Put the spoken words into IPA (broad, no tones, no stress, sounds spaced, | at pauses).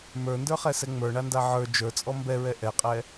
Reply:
m ə˞ n d ə˞ χ ɛ s ɛ ŋ͡m ə˞ ɳ a n d a ʕ ə˞ d͡ʒ ə˞ t͡sʼ ɔ m b ɛ ɹ ɛ ʔ ɛ qʼ ɛ